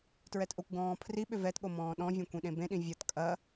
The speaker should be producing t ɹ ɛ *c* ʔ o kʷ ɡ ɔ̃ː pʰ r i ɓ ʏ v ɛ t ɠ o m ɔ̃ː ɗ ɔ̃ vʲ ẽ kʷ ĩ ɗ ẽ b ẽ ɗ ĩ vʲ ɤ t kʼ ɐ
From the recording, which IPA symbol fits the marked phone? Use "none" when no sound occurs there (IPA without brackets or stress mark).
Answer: t